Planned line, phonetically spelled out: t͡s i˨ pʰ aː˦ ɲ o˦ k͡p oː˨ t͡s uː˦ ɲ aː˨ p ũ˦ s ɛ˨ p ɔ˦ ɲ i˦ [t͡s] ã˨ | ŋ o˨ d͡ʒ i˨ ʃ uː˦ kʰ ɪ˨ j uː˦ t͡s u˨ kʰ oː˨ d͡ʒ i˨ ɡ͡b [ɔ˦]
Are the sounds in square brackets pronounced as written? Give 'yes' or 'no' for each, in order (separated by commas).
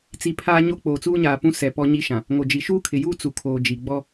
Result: no, yes